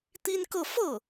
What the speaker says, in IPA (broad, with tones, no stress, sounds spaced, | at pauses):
t̪ i˥ n k ɤ˥˧ f ɤ˥˩